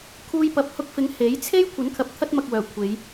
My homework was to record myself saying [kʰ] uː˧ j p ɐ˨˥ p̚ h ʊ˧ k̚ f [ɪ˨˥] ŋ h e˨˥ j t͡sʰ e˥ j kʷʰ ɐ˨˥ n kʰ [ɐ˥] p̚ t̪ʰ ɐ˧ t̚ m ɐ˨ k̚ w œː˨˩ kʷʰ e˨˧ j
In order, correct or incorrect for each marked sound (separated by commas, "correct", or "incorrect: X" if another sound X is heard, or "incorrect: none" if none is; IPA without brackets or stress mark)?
correct, correct, incorrect: ɐ˨